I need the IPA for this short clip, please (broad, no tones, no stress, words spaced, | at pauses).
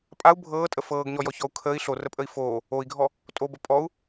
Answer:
pʼau̯ bʱɤːtʼə fɤːɡɲɔjɔçɔu̯ kʰəːi̯ ɬorəpʼəi̯ foː | oi̯ɡʱɔ | tʼobə pʼɔu̯